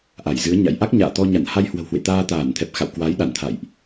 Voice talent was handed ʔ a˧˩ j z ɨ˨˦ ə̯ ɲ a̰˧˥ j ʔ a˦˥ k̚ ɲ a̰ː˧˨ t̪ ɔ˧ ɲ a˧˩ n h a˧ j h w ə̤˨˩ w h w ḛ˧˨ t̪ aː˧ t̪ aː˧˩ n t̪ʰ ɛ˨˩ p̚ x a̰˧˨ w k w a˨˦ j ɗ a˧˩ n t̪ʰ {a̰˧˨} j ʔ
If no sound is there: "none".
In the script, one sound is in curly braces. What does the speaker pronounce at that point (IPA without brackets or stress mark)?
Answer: a̰˧˨